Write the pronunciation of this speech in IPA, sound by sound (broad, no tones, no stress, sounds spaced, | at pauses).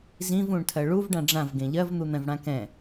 z ĩ v ũ ɳ tʰ ɜ ɭ u v ɖ ã ɖ͡ʐ ã v ɡ ẽ ʎ ɜ v n̪ u n̪ ɛ̃ v ɽ ã k ɛ̃